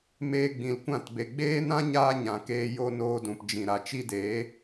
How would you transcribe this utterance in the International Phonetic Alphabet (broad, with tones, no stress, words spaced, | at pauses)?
meː˧ɡ͡bĩ˨lkʷã˦˨tbe˨ ɡ͡beː˦nã˦ ɲaː˦ɲã˨keː˧ jo˧ noː˧dũ˨pd͡ʒĩ˨ ɾa˨t͡ʃi˧deː˨˦